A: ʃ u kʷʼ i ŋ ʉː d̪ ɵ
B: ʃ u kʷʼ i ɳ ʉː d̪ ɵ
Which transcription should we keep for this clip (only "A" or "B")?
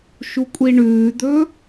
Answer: B